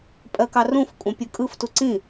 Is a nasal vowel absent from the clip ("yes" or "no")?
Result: no